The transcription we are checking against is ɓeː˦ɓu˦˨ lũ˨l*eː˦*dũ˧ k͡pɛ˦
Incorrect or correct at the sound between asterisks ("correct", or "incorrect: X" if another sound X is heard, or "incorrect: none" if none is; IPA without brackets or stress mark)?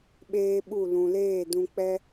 incorrect: eː˦˨